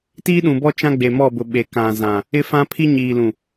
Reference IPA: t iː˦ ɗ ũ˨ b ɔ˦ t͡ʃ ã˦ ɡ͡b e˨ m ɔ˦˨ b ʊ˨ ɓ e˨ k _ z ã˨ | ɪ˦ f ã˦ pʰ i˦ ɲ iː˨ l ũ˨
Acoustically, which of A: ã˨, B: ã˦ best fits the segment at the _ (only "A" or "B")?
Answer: A